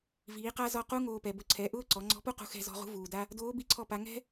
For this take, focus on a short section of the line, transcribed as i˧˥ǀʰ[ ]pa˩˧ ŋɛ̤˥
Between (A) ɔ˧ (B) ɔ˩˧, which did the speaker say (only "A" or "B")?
A